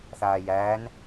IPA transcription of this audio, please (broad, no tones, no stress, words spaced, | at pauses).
θaːjæːn